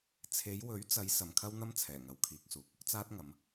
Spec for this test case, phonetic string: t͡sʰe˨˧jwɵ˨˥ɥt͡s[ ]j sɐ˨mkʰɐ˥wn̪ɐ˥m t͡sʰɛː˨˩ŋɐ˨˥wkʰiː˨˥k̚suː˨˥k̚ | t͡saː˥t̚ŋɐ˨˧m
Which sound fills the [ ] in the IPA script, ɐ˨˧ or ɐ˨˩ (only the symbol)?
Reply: ɐ˨˧